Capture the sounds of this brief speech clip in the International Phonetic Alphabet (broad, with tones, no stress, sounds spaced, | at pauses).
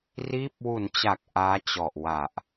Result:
r iː˦˥ p̚ w u˩˦ n t͡ɕ a˨˩ k̚ ʔ aː˦˥ t͡ɕ ɔ˨˩ ʔ w a˨˩ ʔ